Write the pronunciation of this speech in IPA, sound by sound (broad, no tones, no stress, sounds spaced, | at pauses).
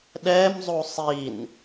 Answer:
ɗ ɛ m zˤ u sˤ i n